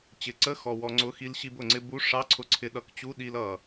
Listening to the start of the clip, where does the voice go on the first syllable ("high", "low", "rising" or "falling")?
low